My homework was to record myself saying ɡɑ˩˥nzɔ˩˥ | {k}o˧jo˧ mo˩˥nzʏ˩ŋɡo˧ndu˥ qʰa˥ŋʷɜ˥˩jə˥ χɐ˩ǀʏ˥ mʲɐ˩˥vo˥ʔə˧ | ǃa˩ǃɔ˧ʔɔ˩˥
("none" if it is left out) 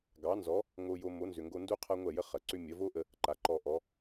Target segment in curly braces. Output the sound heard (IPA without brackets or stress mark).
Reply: ŋ